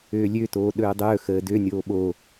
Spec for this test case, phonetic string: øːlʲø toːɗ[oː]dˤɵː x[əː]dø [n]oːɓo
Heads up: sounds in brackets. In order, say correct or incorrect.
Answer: incorrect: ɵː, correct, incorrect: nʲ

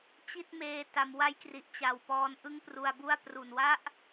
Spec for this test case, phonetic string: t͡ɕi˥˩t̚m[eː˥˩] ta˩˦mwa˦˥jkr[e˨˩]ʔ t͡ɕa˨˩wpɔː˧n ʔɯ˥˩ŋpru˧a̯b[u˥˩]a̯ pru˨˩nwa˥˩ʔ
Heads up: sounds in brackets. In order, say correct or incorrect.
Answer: incorrect: eː˧, incorrect: i˨˩, correct

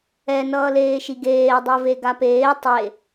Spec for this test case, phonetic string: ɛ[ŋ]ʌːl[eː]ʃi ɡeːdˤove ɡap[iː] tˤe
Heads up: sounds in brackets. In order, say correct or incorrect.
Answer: incorrect: n, correct, incorrect: eː

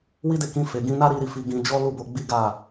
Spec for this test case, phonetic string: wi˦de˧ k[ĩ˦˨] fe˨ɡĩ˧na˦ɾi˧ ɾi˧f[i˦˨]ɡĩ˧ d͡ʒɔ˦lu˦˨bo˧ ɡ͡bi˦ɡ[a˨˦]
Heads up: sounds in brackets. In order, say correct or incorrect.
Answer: incorrect: ĩ˧, incorrect: i˧, incorrect: a˦˨

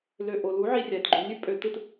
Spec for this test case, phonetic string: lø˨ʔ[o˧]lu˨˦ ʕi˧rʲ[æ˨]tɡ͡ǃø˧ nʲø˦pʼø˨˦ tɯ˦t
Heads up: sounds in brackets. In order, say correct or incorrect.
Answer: incorrect: o˨, correct

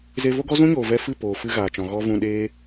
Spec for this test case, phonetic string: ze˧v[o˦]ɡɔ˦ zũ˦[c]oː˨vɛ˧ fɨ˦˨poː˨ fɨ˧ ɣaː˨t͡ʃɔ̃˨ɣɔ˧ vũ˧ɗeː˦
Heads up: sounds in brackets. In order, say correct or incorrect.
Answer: correct, incorrect: ɲ

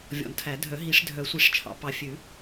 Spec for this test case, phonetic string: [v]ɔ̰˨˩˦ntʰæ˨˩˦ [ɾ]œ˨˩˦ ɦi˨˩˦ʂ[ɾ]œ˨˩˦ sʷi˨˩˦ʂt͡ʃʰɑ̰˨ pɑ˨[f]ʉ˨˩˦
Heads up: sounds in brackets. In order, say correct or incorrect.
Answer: incorrect: vʲ, incorrect: dʱ, incorrect: dʱ, incorrect: fʲ

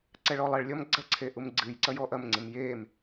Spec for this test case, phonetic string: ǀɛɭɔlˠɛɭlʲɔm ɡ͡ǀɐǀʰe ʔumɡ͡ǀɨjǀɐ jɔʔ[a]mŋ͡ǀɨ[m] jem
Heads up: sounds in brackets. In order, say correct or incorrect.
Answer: incorrect: ɐ, correct

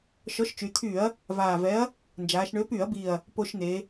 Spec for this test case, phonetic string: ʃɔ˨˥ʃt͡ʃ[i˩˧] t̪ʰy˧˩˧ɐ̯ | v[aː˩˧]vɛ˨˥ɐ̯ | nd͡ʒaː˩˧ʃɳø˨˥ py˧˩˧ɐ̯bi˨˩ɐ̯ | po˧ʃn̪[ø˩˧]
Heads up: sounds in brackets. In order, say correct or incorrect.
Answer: incorrect: y˩˧, incorrect: aː˨˩, incorrect: e˩˧

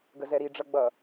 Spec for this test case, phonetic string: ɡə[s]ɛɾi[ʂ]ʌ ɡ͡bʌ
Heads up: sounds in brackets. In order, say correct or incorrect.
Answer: incorrect: z, incorrect: ɖ͡ʐ

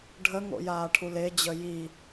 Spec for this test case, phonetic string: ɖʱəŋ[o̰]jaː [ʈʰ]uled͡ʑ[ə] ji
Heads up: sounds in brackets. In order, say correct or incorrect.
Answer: correct, correct, correct

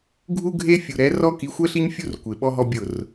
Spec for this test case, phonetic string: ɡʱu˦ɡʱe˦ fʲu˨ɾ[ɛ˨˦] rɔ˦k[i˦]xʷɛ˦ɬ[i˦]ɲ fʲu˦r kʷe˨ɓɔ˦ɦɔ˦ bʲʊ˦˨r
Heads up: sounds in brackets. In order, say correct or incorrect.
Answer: correct, incorrect: i˨˦, correct

